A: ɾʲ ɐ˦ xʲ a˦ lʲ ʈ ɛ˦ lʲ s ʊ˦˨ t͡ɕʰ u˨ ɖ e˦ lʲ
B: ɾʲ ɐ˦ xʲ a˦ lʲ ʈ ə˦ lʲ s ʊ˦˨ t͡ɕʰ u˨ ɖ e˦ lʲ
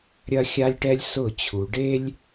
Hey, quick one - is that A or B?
A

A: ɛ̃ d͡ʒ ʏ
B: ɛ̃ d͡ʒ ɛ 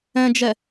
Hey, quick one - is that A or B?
B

